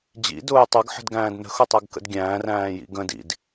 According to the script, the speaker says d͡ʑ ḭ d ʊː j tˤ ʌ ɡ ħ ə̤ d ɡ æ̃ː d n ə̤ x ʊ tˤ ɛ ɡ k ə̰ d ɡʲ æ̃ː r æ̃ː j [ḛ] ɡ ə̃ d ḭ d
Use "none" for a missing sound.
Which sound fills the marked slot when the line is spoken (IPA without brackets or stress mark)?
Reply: ḭ